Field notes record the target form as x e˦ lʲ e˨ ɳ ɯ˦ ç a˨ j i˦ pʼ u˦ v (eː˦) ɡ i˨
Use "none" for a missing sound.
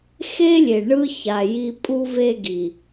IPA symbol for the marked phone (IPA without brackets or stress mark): e˦